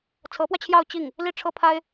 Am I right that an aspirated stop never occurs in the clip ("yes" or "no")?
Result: no